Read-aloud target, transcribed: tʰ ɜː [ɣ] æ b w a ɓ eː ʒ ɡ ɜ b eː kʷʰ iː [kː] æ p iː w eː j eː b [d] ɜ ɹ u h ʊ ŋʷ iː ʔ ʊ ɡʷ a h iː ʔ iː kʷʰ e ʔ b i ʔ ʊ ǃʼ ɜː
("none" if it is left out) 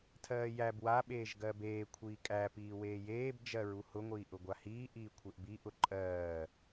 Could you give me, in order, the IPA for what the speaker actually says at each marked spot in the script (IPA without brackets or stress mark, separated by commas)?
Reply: j, kʼ, d͡ʒ